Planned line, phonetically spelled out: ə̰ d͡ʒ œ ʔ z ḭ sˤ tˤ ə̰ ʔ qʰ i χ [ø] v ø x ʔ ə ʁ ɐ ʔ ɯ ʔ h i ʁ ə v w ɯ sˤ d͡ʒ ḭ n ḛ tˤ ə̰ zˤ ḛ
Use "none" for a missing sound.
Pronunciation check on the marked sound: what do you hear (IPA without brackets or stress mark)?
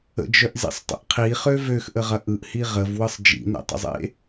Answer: ø